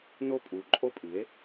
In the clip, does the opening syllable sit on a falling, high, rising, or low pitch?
high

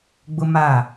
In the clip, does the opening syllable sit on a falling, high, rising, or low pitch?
high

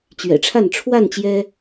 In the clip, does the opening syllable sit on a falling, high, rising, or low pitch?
low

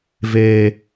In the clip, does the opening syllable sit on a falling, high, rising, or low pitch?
low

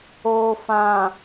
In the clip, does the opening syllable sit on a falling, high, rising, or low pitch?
low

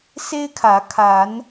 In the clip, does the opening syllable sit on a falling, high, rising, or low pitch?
high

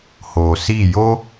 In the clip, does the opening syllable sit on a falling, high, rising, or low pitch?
low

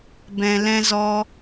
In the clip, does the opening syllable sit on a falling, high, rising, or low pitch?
low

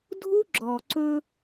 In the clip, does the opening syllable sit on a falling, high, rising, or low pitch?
high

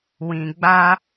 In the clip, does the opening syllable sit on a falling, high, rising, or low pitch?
low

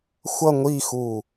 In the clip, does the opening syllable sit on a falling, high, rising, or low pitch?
falling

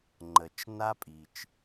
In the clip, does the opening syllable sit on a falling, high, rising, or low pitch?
low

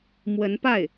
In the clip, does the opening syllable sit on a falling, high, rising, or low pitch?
rising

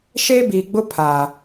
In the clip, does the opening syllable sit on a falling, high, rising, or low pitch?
high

